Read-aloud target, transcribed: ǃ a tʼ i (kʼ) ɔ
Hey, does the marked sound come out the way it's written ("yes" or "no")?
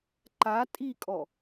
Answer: yes